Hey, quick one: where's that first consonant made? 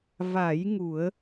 lips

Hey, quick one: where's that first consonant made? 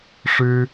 retroflex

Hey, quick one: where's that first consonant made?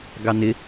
velum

